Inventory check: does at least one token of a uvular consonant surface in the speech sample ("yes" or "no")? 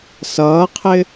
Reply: yes